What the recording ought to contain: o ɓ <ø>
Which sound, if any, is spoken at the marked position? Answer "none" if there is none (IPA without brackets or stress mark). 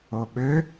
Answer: ø